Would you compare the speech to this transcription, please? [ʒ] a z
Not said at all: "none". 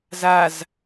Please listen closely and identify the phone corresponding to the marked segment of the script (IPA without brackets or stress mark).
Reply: z